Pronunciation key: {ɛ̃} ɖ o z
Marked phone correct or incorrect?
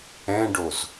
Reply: correct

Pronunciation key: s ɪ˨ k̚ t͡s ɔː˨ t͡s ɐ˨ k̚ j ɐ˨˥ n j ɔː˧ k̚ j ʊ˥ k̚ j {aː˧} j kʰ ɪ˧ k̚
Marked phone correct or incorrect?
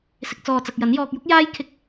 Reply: incorrect: aː˥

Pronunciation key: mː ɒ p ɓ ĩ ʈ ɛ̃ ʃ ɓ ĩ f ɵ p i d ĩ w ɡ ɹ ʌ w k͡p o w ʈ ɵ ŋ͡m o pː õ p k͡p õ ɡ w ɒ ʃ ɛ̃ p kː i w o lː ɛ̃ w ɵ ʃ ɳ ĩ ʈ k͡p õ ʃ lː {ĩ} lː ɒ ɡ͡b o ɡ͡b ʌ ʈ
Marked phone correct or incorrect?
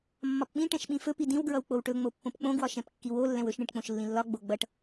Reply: correct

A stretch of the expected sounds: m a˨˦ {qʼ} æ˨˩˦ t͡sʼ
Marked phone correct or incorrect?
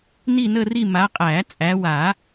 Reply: correct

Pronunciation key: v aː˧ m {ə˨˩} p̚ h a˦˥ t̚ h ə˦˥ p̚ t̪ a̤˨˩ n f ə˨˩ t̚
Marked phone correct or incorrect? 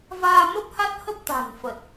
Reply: incorrect: ə˦˥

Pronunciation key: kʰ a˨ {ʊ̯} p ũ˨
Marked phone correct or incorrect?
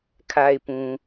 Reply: incorrect: ɪ̯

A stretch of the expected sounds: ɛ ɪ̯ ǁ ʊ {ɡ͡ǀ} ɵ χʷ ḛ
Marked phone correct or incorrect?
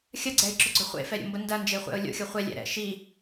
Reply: correct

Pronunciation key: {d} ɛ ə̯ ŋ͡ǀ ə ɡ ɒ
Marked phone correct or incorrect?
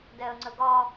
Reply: correct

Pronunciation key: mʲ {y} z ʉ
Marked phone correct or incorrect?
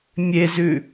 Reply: incorrect: e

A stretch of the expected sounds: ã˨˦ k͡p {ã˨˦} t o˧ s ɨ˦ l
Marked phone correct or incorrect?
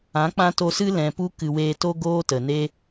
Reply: incorrect: ã˦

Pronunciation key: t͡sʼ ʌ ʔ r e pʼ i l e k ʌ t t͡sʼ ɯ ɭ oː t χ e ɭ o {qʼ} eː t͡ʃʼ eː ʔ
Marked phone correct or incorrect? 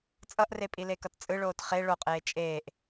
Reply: correct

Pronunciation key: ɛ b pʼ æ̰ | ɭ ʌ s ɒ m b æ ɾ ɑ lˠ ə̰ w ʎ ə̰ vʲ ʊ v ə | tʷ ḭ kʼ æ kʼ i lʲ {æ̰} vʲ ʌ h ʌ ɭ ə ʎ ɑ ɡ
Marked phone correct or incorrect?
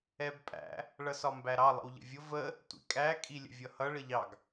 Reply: incorrect: ə̰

